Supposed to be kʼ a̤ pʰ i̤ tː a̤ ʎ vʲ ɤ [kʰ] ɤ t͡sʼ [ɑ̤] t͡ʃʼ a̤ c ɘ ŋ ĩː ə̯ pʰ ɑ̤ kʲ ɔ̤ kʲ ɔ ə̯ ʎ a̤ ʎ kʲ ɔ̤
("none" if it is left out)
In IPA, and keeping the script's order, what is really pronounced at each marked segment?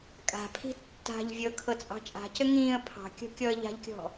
kʰ, ɑ̤

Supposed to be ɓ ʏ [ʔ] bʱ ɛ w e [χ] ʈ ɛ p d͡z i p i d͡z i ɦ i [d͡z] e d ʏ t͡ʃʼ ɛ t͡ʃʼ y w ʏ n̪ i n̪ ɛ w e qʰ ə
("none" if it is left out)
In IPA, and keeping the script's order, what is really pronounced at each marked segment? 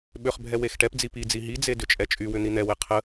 χ, x, d͡z

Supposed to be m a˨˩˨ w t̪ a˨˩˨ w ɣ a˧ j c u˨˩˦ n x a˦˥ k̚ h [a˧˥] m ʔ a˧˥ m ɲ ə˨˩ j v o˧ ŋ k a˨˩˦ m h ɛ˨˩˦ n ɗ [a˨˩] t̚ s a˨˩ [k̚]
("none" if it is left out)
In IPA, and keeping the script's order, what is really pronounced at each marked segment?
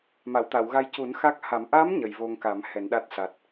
a˨˩˦, a˦˥, t̚

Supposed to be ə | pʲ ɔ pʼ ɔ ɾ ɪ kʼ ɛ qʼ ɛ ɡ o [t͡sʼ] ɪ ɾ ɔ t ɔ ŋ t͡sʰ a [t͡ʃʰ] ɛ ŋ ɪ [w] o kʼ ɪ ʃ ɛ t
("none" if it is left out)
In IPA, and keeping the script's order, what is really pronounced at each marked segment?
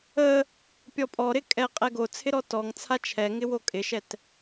t͡sʰ, t͡ʃʰ, w

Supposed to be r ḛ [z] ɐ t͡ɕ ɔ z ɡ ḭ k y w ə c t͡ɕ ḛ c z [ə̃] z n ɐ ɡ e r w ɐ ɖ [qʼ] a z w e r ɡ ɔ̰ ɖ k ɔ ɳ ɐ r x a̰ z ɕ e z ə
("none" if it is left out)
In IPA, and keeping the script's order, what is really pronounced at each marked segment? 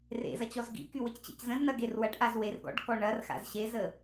z, ə̃, ʔ

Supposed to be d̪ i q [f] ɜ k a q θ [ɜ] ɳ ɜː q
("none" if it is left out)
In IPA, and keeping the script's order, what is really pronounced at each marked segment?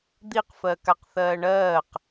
f, ɜː

